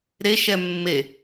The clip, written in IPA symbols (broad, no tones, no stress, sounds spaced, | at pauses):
ɾ e ʃ ɛ mː e